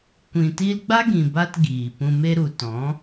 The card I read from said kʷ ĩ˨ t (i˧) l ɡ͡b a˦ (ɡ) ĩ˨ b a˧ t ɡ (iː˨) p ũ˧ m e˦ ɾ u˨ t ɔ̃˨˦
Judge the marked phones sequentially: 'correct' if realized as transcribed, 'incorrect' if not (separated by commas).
correct, correct, correct